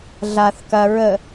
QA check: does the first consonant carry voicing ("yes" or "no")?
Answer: yes